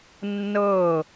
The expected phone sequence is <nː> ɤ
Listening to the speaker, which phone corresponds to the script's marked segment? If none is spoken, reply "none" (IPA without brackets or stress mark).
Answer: nː